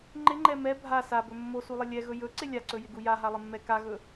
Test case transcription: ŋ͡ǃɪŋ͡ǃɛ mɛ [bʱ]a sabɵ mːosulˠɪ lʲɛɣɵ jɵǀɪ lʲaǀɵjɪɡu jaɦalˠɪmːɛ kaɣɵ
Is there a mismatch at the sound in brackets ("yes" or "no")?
no